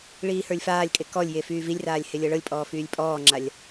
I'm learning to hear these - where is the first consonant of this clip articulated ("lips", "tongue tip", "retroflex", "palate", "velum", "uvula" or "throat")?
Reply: retroflex